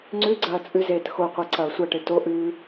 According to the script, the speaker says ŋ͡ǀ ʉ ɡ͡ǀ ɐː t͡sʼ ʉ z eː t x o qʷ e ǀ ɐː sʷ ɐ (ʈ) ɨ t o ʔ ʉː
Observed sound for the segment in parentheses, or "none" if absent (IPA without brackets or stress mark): ʈ